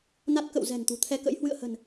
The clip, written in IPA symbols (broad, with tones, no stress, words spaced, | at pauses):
na˦˥t̚ kə̰˧˨wzɛ̤˨˩n t̪ṳ˨˩t̪ʰɛ˧kə̰˧˥j hwɨ̰˧˨ə̯hə̤˨˩n